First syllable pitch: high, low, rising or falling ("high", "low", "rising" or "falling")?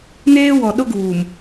high